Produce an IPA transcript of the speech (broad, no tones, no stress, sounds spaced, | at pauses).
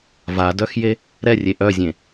v a d œ x j e | ɾ ɛ rʲ e ʔ œ zʲ ẽ